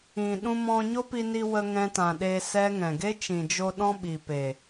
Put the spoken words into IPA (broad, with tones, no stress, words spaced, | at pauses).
ĩ˨ ɗũ˧mɔ̃˧ ɲo˦pi˧ni˧ wə˧ ŋɛ̃˧tã˨ ɗe˧sɛ˦ŋɛ̃˨ ɡe˦t͡ʃĩ˨d͡ʒo˧ ɗɔ̃˦ɓi˨pe˨